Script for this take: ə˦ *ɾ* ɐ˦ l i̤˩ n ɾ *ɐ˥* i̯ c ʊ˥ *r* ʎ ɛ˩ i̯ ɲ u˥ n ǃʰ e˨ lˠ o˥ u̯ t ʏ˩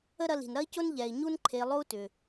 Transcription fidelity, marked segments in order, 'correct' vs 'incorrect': correct, correct, incorrect: n

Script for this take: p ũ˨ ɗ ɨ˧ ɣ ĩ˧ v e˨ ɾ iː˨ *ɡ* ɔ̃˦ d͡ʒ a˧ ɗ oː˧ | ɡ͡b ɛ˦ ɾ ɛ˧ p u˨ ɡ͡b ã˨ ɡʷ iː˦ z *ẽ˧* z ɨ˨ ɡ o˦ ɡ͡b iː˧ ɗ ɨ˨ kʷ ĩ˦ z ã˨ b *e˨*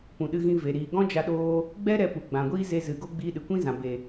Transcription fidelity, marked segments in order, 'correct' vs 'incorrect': correct, incorrect: e˧, correct

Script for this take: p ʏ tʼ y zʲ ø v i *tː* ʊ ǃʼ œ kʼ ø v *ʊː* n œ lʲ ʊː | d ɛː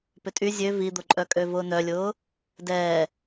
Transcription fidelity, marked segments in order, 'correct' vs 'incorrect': incorrect: d̪, correct

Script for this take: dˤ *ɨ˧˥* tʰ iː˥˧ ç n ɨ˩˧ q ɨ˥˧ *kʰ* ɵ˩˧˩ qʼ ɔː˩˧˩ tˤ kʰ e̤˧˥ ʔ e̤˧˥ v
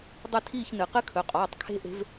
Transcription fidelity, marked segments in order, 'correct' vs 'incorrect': incorrect: ɨ˥˧, correct

